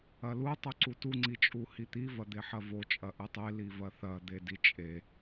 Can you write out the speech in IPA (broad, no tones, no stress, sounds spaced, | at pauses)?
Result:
ɐ l u tˤ u ǀ u t u ŋ͡ǀ i t͡ʃʼ u h i t̪ i v ɐ d̪ e ħ ɐ v o t͡ʃʼ ɐ ʔ ɨ tˤ e l i v ɐ θ ɐ d̪ e d i t͡ʃʼ e